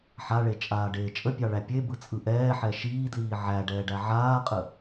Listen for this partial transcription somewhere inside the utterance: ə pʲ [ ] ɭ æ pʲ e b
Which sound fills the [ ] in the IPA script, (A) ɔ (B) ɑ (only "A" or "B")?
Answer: B